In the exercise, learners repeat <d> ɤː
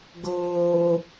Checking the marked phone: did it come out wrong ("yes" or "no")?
yes